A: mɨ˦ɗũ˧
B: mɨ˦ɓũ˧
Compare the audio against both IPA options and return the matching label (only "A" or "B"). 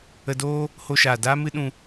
A